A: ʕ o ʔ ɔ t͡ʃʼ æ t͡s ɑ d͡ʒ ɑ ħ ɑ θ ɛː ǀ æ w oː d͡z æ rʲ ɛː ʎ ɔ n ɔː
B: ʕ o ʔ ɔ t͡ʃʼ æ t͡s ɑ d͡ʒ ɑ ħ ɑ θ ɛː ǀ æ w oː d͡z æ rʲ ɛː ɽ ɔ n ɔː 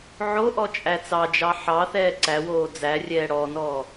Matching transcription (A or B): B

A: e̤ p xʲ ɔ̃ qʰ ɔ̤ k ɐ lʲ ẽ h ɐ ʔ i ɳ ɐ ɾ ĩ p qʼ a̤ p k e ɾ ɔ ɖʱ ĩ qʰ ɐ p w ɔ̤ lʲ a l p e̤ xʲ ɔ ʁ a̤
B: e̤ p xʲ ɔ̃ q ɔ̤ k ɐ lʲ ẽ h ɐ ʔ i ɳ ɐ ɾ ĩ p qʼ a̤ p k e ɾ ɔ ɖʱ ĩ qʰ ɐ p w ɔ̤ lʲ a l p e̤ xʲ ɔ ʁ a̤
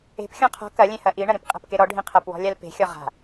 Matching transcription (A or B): A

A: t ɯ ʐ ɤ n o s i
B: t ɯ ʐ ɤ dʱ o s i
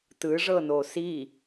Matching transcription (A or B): A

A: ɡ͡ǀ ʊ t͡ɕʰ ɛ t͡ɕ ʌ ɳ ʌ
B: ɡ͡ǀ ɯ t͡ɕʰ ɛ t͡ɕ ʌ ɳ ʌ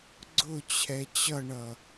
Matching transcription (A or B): A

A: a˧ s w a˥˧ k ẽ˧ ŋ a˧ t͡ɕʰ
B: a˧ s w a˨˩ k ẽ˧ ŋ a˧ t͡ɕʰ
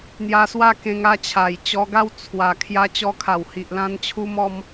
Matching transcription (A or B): A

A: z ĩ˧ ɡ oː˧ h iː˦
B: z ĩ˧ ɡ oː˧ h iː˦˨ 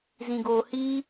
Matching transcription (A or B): A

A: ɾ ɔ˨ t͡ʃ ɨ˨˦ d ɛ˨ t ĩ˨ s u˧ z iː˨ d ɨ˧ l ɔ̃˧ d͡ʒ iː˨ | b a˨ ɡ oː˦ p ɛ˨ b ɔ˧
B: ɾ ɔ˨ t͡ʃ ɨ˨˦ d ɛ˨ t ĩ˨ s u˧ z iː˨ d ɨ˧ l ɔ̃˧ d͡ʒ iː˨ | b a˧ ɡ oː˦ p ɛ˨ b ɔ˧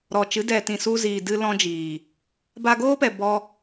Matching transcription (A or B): B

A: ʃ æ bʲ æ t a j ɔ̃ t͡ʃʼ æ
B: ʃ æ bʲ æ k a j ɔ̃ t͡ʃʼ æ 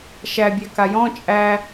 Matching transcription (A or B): B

